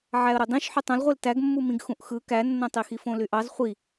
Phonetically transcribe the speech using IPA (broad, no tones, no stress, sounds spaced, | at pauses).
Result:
ʕ æ ə̯ ɾ o dˤ ĩ ʃ ħ y tˤ õ l ʁʷ e l t æ ɡ mː u m ĩ ɡ x ũ ʔ x ɯ k æ nː õ tˤ i x i f õ l y ʔ ɑ z χʷ i